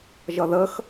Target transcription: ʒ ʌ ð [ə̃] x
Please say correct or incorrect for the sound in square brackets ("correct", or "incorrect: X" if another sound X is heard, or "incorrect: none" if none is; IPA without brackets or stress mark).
incorrect: ə